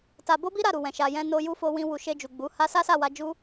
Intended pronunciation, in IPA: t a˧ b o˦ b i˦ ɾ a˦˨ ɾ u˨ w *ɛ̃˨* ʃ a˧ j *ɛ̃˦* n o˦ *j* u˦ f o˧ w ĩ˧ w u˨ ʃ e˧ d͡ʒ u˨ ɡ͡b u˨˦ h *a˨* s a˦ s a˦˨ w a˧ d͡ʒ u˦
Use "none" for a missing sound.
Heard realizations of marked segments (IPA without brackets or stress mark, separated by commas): ɛ̃˨, ɛ̃˦, j, a˦